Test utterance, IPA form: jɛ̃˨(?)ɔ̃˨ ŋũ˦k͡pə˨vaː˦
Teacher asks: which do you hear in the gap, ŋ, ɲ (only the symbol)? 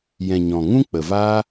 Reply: ɲ